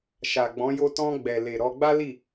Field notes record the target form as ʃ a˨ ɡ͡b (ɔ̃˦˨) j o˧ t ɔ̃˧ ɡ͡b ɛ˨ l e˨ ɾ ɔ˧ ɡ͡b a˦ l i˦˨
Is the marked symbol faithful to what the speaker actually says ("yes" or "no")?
no